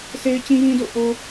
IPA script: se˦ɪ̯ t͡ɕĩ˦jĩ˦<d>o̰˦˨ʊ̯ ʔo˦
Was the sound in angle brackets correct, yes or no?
yes